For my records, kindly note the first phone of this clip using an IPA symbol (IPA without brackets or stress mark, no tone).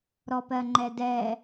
ɾ